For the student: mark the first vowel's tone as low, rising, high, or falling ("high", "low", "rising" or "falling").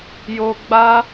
high